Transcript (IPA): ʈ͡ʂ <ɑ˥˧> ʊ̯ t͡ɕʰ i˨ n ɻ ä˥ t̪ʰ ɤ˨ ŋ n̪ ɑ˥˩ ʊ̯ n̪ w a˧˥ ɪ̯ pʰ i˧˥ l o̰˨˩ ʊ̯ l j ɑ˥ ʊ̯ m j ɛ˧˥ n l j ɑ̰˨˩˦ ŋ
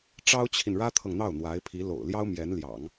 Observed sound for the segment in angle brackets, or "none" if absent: ɑ˥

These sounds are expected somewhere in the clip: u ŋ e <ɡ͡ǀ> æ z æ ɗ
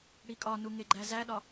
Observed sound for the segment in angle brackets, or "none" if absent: ɡ͡ǃ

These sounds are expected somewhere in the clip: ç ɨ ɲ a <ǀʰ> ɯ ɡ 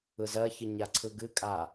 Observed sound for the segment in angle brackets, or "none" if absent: ǀʰ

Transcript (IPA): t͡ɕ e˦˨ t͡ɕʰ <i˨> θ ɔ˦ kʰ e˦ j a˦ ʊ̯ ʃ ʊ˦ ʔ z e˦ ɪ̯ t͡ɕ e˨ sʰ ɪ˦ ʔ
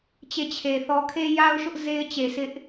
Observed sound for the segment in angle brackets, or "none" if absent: e˨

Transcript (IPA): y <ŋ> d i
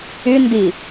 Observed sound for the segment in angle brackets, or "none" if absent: n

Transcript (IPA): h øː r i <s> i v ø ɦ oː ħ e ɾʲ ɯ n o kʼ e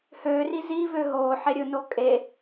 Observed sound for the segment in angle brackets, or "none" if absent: z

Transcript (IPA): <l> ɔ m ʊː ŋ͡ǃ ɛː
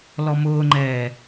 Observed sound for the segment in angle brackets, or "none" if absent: l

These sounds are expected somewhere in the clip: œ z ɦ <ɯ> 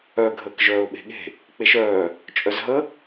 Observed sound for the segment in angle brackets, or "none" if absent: ə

